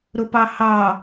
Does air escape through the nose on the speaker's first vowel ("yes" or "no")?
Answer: no